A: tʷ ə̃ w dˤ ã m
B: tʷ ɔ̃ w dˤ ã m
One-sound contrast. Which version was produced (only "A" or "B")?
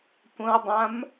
A